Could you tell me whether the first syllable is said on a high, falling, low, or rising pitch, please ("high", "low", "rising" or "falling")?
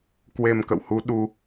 low